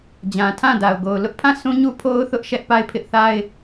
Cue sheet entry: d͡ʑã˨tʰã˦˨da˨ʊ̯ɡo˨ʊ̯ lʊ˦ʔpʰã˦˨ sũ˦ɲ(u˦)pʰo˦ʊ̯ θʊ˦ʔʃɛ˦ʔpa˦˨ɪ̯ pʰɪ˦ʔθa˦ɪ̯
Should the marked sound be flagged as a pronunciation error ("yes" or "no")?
no